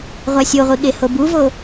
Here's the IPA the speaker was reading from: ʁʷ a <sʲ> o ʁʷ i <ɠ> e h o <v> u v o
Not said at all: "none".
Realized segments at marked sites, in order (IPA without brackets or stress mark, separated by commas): sʲ, ɠ, b